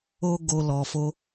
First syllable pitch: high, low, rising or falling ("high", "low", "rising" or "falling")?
high